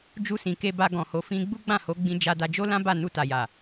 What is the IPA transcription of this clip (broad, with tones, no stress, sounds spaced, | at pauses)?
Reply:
d͡ʒ u˧ s ĩ˨ k e˧ b a˧ ɡ ɔ̃˨ h o˨ f ĩ˧ ɡ͡b u˦ ɡ͡b ã˦˨ h o˨˦ ɡ͡b ĩ˧ d͡ʒ a˧ d a˧ d͡ʒ o˦ l ã˦ b a˦˨ n u˧ t a˨ j a˨